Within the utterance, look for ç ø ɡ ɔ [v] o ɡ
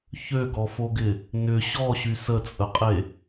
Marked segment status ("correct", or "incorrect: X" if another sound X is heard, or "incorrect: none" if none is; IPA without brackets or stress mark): incorrect: f